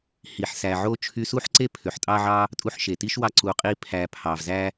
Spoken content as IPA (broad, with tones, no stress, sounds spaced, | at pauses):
h i˨ ħ s æ˨ ʕ o˥ t͡ʃʰ y˥ s u˥ ħ ǀ e˥ pʰ ø˩ ħ tʼ ɑ˥ ʕ ɑ˥ | tʼ u˦ ħ ʃ e˩ t i˥ ʃ w ɑ˦ ǀ u˨ qʼ i˦ pʰ æ˨ pʰ ɑ˩ v z æ˥